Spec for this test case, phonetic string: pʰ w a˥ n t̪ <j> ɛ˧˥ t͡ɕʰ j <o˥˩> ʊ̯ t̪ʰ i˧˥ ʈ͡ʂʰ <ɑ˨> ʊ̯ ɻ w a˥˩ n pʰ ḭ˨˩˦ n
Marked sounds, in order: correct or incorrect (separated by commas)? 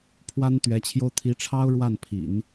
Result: incorrect, incorrect, incorrect